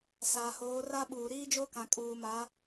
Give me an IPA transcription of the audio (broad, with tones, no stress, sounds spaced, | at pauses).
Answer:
s aː˨ h oː˨˦ r a˦ ɓ uː˨ ɾ iː˦ d͡ʒ o˦ k ã˨ kʼ uː˨ m a˨˦